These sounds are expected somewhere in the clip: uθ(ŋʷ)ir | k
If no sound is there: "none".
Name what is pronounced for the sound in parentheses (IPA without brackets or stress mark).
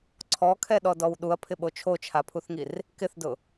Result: ŋ